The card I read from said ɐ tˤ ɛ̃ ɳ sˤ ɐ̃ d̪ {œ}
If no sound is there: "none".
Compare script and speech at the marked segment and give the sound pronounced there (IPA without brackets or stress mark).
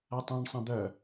œ